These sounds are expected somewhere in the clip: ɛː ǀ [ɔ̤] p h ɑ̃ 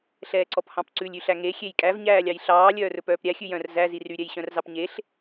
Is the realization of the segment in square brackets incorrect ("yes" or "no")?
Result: yes